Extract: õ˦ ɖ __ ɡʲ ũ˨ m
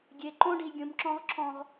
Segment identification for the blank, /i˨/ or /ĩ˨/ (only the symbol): i˨